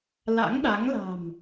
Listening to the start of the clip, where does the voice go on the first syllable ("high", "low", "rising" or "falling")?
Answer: rising